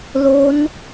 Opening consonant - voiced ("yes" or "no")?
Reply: yes